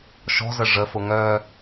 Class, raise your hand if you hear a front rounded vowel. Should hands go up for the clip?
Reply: yes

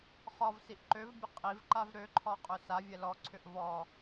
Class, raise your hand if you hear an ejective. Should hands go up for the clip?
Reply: yes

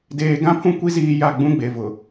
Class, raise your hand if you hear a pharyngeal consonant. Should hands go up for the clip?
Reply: no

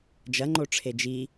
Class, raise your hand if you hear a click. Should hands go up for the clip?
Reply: yes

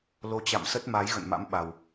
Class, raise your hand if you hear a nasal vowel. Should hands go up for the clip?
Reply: no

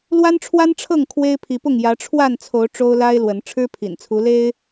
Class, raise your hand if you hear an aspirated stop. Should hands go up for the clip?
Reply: yes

